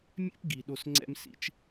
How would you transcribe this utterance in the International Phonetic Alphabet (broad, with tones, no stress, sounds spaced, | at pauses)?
mʲ ɛ̰˥ p ɡ i˨ ɗ o˦ s ŋ͡ǀ ɛ̰˥ m s ḭ˦ t͡ʃ